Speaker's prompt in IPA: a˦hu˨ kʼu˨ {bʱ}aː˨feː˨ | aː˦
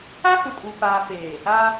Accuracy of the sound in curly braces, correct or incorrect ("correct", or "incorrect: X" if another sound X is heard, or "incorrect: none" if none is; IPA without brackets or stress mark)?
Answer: incorrect: p